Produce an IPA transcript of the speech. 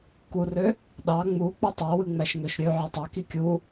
k u r ø | ɗ ɑ ŋ͡m u k͡p y tˤ æ w ɯ ŋ͡m æ ʃ ŋ ø ʃ ɾʲ ø ʕ ø tˤ ɑ k i kʲ u

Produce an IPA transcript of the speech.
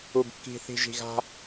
u˨ b kː i̤˨ θ i̤˨ ʒ i̤˨ ɣ a̤˦

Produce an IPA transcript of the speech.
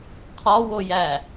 qʰ ɒ w o j æ

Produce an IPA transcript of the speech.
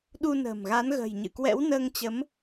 ɗ u˧ n ə̤ː˨˩ m ɣ a˨˦ n ɣ ə̤˨˩ j ɲ ɨ̰˧˨ k w ɛ̰˧˥ w n əː˧ ŋ t͡ɕ ə˨˦ m

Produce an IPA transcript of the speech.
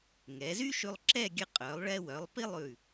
ŋ ɛ˩˧ z y˥ ʃ ʉ˧ lˠ ǁ ɛ˥˧ ɡʲ ə˧ qʼ œ˩˧ lˠ ɭ ɛ˧ w œ˩˧ lˠ p i˥ lˠ ʉ˧˩

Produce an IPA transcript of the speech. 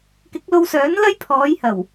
k ɪ˨˥ k̚ l o˧ w s œː˨˥ n l ɐ˥ j pʰ ɔː˨˧ j h ɐ˨˩ w

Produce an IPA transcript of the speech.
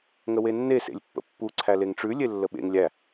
ŋ ə w e nː e s ḛ lʲ pː ə̰ pː u ǀʰ æ l e ŋ ʈ͡ʂ ʉ lʲ e lː ə ɓ ḛ ŋ lʲ æ

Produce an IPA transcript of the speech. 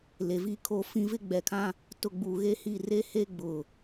l e˨ v i˦ kʰ o˦ f ĩ˦ v ɪ˦ ɡ͡b ɛ˨ kʰ ã˦ | t ʊ˨ ɡ͡b u˨ ɣ e˦ h i˦˨ r e˦ h e˦ ɡ͡b ʊ˨

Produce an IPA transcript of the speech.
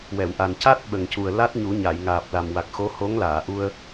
w ɛ˨˩˨ w ʔ a˨˩ n c a˦˥ t̚ ɓ ə˨˩ ŋ c u˨˩ ə̯ l a˦˥ t̚ ɲ u˨˩˦ ɲ a˨˩˨ j ŋ aː˨˩ p̚ l a˨˩ m w a˨˩ k̚ x o˧˥ h o˧˥ ŋ l aː˨˩˨ ʔ u˧ ə̯

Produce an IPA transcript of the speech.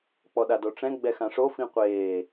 k͡p ɔ ɗ a d o ʈ͡ʂ ɛ̃ ɡ͡b ɛ x ã ʂ o f ĩ qʷ eː

